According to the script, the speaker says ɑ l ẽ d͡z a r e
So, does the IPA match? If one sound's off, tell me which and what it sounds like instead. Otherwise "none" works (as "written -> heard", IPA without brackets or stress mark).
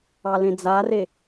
none